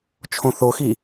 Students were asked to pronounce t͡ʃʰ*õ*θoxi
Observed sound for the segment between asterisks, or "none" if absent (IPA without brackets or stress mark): õ